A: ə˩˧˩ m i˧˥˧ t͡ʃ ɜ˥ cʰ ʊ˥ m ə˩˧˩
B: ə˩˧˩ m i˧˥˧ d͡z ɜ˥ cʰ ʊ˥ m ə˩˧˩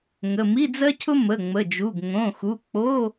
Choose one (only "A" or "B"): B